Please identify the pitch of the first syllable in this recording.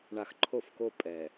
low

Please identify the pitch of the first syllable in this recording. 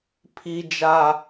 high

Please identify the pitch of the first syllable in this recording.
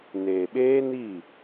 low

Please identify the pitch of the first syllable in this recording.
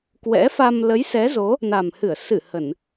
rising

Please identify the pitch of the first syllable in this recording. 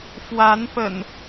rising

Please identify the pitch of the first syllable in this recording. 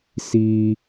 high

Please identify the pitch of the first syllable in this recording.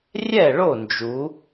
falling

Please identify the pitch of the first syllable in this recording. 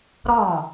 falling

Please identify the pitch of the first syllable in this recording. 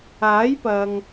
rising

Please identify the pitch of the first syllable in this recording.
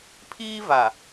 high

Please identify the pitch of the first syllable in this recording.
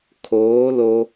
rising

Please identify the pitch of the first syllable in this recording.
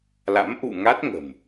rising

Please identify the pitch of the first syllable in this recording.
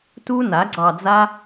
high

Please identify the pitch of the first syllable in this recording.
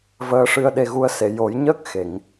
rising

